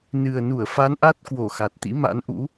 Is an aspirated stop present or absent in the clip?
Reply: absent